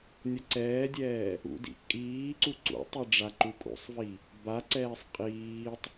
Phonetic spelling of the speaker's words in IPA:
nʲ ʌ ǀ ɛː dʲ ɛː | ṵ d ḭ ʔ kʼ iː ǀ u ǀ ṵ tˤ i ɖ͡ʐ a ǃ u kʼ ṵ sˤ v i | b a ǀ ɛː sˤ qʼ iː tˤ

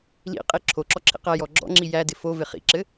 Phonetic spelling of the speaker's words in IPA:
l ḭ qʼ i ǁʰ o ǁ ɔ ǁʰ ḭ q æ j ɔ ɡ͡ǁ ɔ̰ ŋ͡ǁ i j æ d ɪ f o v ɪ χ ḭ ǁ ɘ

